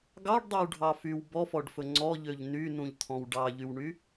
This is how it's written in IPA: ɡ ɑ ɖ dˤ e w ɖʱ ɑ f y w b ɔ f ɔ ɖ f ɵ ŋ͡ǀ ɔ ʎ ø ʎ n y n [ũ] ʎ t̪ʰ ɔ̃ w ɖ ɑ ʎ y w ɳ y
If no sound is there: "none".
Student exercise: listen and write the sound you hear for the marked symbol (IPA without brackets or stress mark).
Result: ũ